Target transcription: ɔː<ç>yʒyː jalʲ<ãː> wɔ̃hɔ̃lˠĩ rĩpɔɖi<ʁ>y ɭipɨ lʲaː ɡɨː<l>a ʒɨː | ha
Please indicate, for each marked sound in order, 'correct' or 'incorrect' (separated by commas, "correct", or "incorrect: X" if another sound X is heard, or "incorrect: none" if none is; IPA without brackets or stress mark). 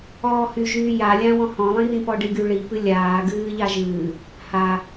incorrect: h, incorrect: ã, incorrect: ɡ, incorrect: ʎ